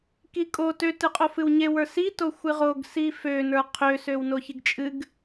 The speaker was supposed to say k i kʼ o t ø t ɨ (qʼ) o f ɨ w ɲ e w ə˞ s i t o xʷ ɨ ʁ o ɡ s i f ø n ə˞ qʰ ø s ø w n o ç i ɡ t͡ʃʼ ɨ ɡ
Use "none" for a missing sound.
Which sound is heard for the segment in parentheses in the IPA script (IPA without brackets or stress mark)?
qʼ